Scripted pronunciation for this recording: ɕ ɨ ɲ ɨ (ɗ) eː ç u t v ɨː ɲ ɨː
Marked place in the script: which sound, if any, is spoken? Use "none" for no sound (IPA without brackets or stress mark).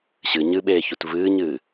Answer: ɓ